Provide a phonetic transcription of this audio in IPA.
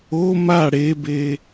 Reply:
o m a ɽ e b e

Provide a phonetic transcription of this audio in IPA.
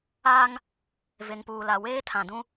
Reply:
aː˦ ŋ | v e˨ ŋ p uː˨ l a˨ w eː˦ tʰ ã˨ d ũ˦

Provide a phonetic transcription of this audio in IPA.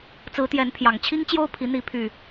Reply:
t͡s ɹ̩˨˦ t̪ j ɛ˨˦ n pʰ j ɑ˨˩ ŋ t͡ɕʰ i˦ ŋ t͡ɕ j o˦ ʊ̯ pʰ i˨˦ n̪ i˨˦ pʰ y˨˩

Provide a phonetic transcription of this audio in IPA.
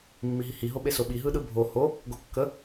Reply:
mː i ɦ i h i ɦ o ɓ e s o ɓ i ɦ ɯ ɗ ɯ bʱ o h o | ɡ o kː ə

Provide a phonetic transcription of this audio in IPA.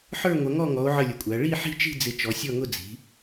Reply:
ħ ə˞˦˨ ŋʷ ʌ˩˧ ŋ ɔ˦˨ ŋ ɔ˩˧ o̯ ʕ ə˦˨ lʲ ə˩˧ kʷʼ æ˩˧ ɭ i˦˨ ħ i̤˦˨ t͡ʃ i̤˦˨ d͡z ɪ˩˧ t͡ʃ ɔ˩˧ sʲ ɔ˦˨ ŋ ʊ˦˨ d͡z i̤˩˧

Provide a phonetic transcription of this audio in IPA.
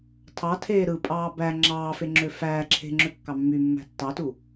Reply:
tʰ ɑ tʰ eː ɾ ɯ pʼ ɑː b æ ŋ͡ǁ ɑː f e ŋ͡ǁ ø f æː ǁʰ e̤ ŋ͡ǁ ø kː ɑ mː y mː æ̤ tː ɑ t u

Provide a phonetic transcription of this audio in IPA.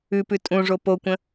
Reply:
ʉ p ʉ tʼ ũ ʐ o p o kʷ ə̃

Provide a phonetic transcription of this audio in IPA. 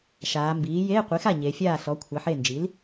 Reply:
ʃ aː˩˧ m b iː˩˥ j eː˧˥˧ qʷ i˩˥ x a˥˩ ɲ e˩˧ fʲ aː˥˩ ɬ ɔ˩˥ kʷʰ æ˩˥ ħ e˥˩ n d͡ʒ i˩˥ l

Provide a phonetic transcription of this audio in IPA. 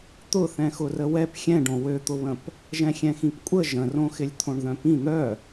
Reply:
t̪ ʊ θ ɛ̃ x ʊ r ə w ɛ p xʲ ɛ̃ ɖ õ w ø t̪ ʊ β ə̃ p | ʒ ɛ̃ xʲ ɛ̃ x ĩ p kʷʼ ə ʒ ə̃ r õ x ɪ lʲ t̪ʰ õ ɳ ð œ̃ p ĩ n̪ œ

